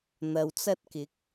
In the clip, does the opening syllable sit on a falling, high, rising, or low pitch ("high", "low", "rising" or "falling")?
low